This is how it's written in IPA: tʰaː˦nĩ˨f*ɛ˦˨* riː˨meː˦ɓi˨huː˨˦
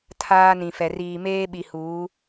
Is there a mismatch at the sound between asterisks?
yes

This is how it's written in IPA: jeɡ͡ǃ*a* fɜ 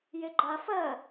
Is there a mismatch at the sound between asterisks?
no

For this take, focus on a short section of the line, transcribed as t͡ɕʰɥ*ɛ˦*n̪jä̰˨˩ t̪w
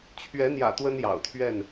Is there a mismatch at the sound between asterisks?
yes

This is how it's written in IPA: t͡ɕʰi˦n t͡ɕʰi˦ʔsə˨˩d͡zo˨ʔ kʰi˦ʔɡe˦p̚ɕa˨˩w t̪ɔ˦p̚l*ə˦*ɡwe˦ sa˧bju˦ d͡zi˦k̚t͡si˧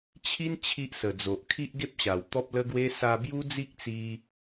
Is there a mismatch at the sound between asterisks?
no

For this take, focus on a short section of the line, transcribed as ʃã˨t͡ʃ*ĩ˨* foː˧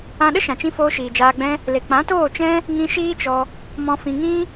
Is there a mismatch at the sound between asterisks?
yes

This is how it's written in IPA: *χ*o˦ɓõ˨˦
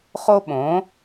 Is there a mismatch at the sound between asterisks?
no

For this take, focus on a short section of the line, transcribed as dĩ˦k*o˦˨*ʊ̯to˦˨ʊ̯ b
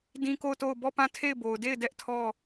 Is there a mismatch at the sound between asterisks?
no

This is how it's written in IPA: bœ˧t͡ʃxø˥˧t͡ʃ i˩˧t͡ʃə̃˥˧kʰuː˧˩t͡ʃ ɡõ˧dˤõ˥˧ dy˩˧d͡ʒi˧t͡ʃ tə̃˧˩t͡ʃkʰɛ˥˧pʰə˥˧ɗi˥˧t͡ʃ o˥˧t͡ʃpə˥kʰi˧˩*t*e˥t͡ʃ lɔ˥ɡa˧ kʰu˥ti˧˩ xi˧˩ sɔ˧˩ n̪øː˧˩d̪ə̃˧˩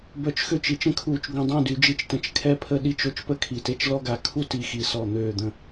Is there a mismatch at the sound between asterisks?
no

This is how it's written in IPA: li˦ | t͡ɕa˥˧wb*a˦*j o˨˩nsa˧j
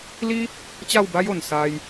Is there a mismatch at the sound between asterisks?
no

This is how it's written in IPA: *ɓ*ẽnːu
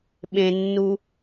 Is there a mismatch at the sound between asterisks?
no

